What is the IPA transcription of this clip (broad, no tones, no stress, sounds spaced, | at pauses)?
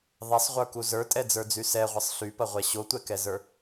ðˤ ɛ sˤ ʁʷ ə˞ k u z ə˞ tʼ ɛ d͡z ə˞ d͡z y s ɛ ʁʷ ə sˤ ɬ y p ɐ ʁʷ ɛ ɕ o tʷ ɛ k ɛ z ə˞